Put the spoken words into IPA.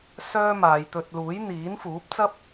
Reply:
s œː˥ m aː˨˧ j t̪ ɵ˧ t̚ l uː˨˥ j n̪ iː˨˥ n f uː˨˥ p̚ t͡s ɐ˥ p̚

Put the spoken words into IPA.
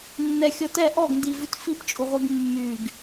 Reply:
nː ɛ xʲ ɔ t ɛ ʔ ɔ ɡ n d i v ʉ t f i p t͡ʃʼ u ʁʷ i ɡ mː y ɡ

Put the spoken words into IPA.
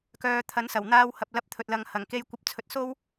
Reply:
k œː˨ t̪ʰ ɐ˨˥ n s ɐ˨˩ w n̪ aː˧ w h ɐ˨ p̚ l ɐ˧ p̚ t̪ʰ ɵ˨ t̚ l ɐ˨ ŋ h ɐ˨˩ ŋ k e˧ j kʷ ɐ˧ p̚ t͡sʰ ɵ˨˥ t̚ s o˥ w

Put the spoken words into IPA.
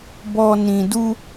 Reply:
b ɔ˧ n ĩ˨ d u˧

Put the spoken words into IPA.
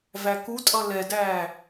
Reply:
v æ k u tʼ ʌ l ɛ d æː

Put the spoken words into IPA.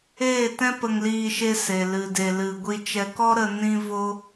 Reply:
eː˦˨ t ɛ̃˦ p ə˧ ŋ l iː˧ ʃ e˧ s e˨ l ɨ˨ d e˨ l ɨ˨ ɡʷ i˧ t͡ʃ ɛ˧ k ɔ˦ ɾ ə˧ n ĩ˧ v o˧

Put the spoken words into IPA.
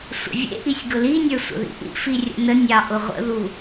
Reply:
sʷ ə̰ vʲ ḛ ʔ i sʲ ɡ ʊ l i nʲ ə˞ sʷ ə̰ ð ḭ ʔ ḭ f i rʲ ə̰ n ə nʲ ɑ ʔ ʊ ʁʷ ə̰ ð u

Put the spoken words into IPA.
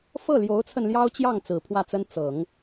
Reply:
f ɤ˥˩ l j o˧˥ ʊ̯ t͡sʰ ə˧ n l j ɑ˥ ʊ̯ t͡ɕ j ɑ˥˩ ŋ t͡s ɹ̩˨˩ pʰ w ä˥˩ t͡s ə˥ n t͡s ɤ˨˩˦ ŋ

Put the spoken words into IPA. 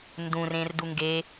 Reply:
n d ũ r ẽ r d u ŋ ɡ e

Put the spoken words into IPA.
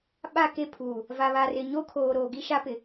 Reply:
ɓ a˦˨ k e˦˨ pʰ uː˨ | v a˨ β a˨ r ɪ˨ ɲ o˦ kʰ oː˨ ɾ o˨ ɡ i˦ ʃ a˦ p ɪ˨

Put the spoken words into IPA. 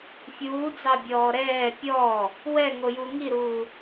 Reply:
fʲ uː d͡z ɑ bʲ ɔː ɾ ɛː pʲ ɔː | w ɛ ŋ o j u ŋ i ɾ uː

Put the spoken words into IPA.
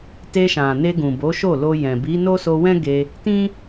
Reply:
t e˧ ʃ ã˨ n e˧ ɡ ũ˨ b o˨˦ ʃ o˦˨ l o˧ j ɛ̃˨ b i˨˦ n o˦ s o˧ w ɛ̃˦ ɡ e˧ | t ĩ˦

